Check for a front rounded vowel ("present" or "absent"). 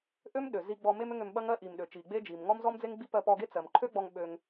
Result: present